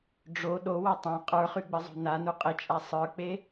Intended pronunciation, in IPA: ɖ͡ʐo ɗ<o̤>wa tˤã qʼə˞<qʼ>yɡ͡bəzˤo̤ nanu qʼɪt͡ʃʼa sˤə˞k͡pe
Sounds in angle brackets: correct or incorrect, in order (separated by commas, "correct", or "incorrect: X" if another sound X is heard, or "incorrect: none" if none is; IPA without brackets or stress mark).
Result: incorrect: o, incorrect: χ